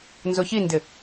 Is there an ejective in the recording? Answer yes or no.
no